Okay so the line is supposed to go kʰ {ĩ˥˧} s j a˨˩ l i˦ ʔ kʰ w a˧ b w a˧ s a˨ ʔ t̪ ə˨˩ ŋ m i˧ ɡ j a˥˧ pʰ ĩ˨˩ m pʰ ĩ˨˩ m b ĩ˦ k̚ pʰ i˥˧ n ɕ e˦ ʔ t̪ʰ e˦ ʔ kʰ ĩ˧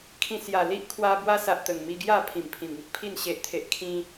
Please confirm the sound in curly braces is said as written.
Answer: no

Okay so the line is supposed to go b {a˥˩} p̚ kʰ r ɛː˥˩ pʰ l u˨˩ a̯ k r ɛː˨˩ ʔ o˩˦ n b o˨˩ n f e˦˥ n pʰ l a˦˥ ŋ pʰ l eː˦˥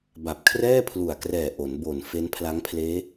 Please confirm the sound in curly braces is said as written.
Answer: no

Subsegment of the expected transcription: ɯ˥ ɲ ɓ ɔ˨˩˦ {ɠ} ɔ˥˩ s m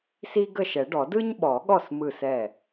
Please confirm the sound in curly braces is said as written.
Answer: yes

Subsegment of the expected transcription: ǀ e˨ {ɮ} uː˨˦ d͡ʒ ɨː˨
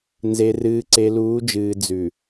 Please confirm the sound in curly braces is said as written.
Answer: no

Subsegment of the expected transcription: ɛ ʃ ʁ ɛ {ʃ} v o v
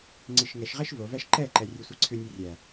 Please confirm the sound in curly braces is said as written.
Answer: yes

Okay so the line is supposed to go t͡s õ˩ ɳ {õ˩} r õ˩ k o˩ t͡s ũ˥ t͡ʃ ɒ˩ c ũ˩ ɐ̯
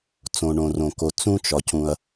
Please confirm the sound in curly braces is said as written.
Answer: yes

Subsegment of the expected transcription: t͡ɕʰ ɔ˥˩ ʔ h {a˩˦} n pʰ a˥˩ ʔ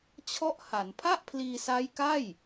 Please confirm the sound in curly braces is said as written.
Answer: yes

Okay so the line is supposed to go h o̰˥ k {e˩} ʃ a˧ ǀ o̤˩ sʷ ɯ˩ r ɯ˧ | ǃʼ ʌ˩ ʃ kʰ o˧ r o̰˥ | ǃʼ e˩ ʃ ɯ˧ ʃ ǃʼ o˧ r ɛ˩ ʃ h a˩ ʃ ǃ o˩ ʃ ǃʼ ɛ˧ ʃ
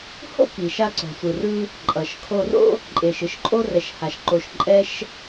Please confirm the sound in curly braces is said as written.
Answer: no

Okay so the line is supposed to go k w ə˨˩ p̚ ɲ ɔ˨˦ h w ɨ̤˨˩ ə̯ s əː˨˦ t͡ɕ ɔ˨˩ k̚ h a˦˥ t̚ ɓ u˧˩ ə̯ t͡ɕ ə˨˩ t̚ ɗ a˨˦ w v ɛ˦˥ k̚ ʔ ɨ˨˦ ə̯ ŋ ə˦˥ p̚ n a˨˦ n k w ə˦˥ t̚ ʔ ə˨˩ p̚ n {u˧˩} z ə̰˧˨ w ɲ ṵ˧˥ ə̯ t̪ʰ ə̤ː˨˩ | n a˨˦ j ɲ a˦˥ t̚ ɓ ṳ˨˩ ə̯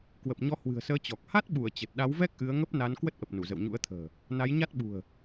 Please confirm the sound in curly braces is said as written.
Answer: yes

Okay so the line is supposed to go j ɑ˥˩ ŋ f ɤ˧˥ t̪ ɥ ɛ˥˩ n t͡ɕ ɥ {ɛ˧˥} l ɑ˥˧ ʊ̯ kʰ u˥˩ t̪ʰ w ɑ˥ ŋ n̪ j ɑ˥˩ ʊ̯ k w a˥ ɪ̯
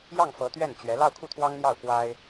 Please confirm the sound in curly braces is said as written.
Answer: yes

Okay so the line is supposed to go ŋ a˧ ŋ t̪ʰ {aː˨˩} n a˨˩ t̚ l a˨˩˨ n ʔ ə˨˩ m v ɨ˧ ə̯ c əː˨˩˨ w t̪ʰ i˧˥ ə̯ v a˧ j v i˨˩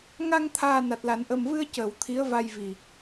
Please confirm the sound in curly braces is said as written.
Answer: yes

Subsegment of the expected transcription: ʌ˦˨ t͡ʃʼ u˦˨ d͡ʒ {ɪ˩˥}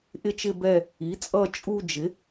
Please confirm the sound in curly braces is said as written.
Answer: yes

